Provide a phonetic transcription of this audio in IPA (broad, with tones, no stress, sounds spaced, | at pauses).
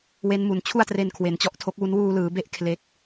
w e˦˥ n m u˨˩ n t͡ɕʰ u˥˩ a̯ t r e˧ n kʰ w e˨˩ n t͡ɕ ɔ˦˥ ʔ tʰ o˦˥ k̚ w u˦˥ n w uː˧ l ɯː˩˦ b e˦˥ ʔ kʰ l e˥˩ k̚